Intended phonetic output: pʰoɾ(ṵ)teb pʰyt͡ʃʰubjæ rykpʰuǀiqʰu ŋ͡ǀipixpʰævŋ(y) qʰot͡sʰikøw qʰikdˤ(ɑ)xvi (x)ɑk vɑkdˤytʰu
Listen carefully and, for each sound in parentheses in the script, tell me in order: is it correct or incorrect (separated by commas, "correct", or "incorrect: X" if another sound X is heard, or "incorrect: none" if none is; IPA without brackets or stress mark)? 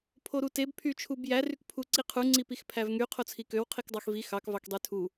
incorrect: u, correct, correct, correct